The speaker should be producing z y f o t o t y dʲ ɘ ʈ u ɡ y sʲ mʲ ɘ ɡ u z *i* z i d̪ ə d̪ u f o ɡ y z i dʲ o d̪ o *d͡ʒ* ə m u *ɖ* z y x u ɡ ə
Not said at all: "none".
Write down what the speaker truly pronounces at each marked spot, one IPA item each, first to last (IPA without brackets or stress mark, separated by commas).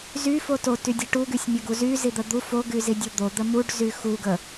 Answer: y, d̪, ɖ